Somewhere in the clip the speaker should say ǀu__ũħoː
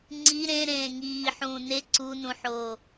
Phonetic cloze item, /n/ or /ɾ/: n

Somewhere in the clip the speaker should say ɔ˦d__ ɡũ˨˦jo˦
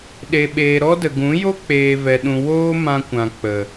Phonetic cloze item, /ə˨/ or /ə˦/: ə˨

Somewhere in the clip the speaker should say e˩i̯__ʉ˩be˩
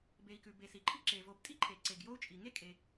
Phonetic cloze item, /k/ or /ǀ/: k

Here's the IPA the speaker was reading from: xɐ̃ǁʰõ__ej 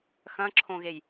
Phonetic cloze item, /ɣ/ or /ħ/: ɣ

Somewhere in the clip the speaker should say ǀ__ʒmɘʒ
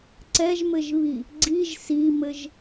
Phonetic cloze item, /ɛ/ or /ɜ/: ɛ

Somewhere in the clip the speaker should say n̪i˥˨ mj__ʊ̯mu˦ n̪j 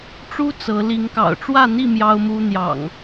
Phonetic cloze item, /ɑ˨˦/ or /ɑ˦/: ɑ˦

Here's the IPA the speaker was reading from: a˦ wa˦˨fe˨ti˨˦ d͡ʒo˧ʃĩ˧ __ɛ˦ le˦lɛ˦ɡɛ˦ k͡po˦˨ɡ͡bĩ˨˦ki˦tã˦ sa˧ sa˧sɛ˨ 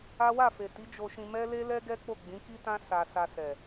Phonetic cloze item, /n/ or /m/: m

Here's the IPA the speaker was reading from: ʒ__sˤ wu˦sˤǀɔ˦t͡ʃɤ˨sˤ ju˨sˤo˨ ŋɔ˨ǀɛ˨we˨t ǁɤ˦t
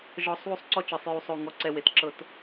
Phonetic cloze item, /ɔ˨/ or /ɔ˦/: ɔ˨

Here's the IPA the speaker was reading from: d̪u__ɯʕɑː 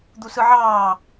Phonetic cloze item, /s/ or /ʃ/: s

